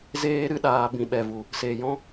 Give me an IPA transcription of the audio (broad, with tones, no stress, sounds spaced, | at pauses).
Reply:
z eː˦ ɾ ɨ˦ ɗ aː˧ b ĩ˨ ɓ ɛ˨ v u˨ | s e˨ j ɔ̃˦